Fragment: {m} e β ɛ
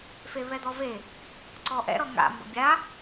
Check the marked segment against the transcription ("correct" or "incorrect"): incorrect